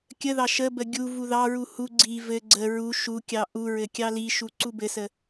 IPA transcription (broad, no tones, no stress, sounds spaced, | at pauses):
kʲ ə ð ɑ ʃ ə b ə ɡʲ u v u ð ɑ ɹ u h u ɡ͡ǀ i v ɘ ɡ͡ǀ ə ɹ u ʃ u kʲ ɑ ʔ u ɹ ɘ kʲ ɑ l i ʃ u ǀ u b ɘ s ə